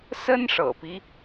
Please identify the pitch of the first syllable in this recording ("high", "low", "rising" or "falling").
high